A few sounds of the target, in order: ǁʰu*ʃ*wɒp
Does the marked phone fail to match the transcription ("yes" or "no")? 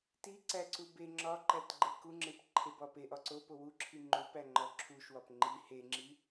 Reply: no